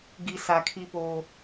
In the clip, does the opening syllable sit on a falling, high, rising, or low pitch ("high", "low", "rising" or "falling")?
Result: high